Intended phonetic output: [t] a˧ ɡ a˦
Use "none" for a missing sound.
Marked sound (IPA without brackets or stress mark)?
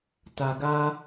t